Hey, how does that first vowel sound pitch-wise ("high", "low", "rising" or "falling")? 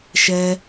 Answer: high